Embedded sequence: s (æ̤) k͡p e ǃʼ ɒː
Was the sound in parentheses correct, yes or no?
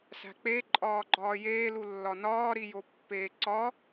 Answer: yes